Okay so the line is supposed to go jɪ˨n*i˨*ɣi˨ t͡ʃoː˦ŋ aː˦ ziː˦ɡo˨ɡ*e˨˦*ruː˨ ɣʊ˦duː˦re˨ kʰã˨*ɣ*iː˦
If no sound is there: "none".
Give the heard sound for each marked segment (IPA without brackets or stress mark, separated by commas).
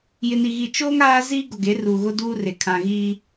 i˨, e˨˦, ɣ